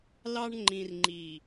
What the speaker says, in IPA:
l ɑ˦ ɳ ŋ͡ǃ ĩ˨ r ŋ͡ǃ i˨

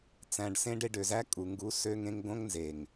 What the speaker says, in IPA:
t͡s æ̃˧ ɖ s ẽ˦ ɖ e˧ ɖ ø˨ z æ˦ kʼ u˨ ŋ ɡ u˨˦ s ø˧ ŋ ẽ˧ ŋ ɡ õ˦ ŋ n z e˨ ŋ

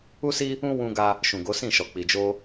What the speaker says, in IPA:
u˦ s i˦ | ũ˦ w ũ˦ ɡ a˦ | ʃ ũ˨ ɡ o˨˦ s ĩ˦˨ ʃ ɔ˨ k͡p i˨ d͡ʒ o˧

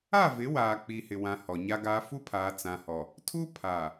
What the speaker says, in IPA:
a˦˨ v ɪ˨˦ w aː˨ k͡p i˨ h ɪ˨ w ã˨ h ɔ˨ ɲ a˦ ɡ aː˦ f u˦ pʰ aː˨ t͡s ã˨ h ɔ˨ | tʰ u˦ pʰ a˨

